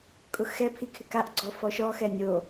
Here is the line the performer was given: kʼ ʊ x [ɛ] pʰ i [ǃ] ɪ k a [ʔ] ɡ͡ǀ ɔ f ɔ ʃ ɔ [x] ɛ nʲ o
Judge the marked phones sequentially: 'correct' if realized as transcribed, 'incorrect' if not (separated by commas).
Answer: correct, incorrect, correct, correct